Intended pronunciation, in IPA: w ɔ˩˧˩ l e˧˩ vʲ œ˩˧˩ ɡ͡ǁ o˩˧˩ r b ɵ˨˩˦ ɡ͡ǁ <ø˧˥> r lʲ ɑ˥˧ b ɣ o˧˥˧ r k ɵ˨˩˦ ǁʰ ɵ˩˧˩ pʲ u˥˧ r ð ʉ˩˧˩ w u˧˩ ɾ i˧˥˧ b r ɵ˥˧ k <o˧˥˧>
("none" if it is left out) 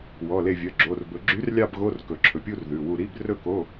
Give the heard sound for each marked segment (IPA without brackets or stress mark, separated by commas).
y˧˥, o˧˥˧